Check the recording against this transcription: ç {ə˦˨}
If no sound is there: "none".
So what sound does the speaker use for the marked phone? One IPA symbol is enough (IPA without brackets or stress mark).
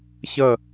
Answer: ə˦˨